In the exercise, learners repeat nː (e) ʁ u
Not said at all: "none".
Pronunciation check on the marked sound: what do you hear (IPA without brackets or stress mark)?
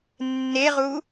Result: e